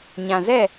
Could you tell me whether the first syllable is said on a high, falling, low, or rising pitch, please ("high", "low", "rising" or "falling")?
low